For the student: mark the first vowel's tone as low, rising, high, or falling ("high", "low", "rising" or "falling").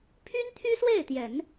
high